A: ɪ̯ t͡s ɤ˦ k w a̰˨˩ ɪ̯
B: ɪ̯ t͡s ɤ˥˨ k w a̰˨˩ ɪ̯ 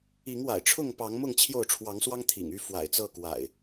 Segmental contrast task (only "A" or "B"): B